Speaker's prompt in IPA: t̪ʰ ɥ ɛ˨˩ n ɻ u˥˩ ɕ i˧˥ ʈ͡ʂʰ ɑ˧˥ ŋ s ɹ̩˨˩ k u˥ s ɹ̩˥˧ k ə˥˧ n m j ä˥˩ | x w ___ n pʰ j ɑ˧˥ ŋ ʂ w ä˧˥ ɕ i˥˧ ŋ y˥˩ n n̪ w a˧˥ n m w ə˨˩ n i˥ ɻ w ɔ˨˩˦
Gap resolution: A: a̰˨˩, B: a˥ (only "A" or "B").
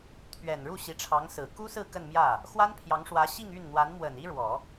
B